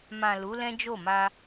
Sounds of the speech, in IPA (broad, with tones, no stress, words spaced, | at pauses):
mã˨ lu˨˦lɛ̃˦d͡ʒo˦˨ma˧